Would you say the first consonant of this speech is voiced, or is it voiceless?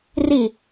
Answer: voiced